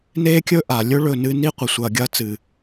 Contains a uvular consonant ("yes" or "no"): yes